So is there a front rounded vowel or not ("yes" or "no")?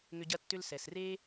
yes